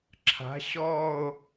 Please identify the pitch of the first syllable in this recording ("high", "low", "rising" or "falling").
rising